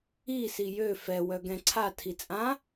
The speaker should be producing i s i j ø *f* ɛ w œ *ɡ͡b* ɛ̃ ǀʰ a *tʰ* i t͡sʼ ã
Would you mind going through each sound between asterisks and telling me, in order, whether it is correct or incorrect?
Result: correct, incorrect: ɡ, correct

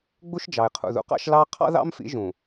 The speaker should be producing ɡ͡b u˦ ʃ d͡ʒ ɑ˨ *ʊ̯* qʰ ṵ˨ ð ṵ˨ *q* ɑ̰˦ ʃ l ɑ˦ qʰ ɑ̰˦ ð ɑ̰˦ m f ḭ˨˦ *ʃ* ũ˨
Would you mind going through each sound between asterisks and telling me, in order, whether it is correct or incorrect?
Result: incorrect: ɪ̯, correct, incorrect: ʒ

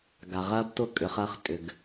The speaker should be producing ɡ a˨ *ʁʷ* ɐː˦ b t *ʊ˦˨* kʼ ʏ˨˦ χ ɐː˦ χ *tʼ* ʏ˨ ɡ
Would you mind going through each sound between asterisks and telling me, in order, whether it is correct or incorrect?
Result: incorrect: ʁ, correct, correct

